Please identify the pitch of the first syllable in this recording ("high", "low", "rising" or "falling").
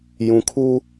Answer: low